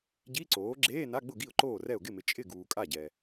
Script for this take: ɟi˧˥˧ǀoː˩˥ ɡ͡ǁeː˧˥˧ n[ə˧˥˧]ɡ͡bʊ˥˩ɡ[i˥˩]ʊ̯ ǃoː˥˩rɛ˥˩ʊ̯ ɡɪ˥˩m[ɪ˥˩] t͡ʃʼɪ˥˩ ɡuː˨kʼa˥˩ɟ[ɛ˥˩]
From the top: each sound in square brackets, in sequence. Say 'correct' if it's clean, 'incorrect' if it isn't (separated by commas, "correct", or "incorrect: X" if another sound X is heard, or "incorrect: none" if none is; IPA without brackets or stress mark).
incorrect: a˧˥˧, correct, incorrect: ɪ˨, incorrect: ɛ˨